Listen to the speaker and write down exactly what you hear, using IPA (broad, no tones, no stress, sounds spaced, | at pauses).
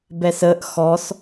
b ɛ s ə ʔ x ɔ s